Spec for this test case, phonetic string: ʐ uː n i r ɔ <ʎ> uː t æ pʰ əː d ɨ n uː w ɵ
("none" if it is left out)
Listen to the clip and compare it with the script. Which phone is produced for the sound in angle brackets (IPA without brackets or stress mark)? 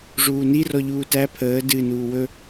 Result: ʎ